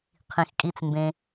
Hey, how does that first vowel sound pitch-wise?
low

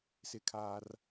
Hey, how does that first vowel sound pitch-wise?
high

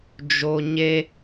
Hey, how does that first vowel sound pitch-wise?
low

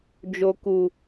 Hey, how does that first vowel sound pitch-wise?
low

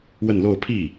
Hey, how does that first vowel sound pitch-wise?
falling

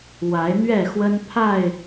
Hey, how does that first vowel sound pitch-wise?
rising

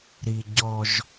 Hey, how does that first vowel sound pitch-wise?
high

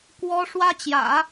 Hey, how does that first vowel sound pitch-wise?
high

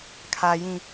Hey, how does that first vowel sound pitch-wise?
high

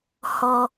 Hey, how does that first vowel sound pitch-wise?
low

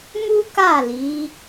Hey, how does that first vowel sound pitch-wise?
high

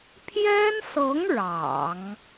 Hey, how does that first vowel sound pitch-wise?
high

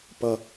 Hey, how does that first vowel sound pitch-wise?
high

